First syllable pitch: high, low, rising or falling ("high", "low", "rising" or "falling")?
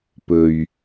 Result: low